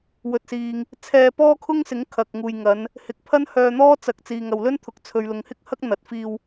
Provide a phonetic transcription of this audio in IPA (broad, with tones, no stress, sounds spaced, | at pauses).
w ɵ˨ t̚ s iː˨ ŋ | t͡sʰ ɛː˧ p ɔː˥ kʰ ʊ˥ ŋ s ɪ˨˥ ŋ kʰ ɐ˨ k̚ ŋ uː˨ j ŋ ɐ˨˧ n | h ɪ˨˥ k̚ pʰ ɐ˥ n h œː˧ n̪ ɔː˥ t͡s ɐ˨ k̚ t͡s iː˨ ŋ ɐ˨ w l ɵ˥ n t̪ʰ ʊ˨˥ k̚ t͡sʰ ɵ˨ ɥ l ʊ˨ ŋ h ɪ˥ k̚ h ɐ˥ k̚ n̪ ɐ˨ t̚ f iː˧ w